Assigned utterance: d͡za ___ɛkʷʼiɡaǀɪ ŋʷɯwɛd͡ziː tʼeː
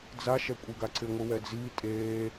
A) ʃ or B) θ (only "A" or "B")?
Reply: A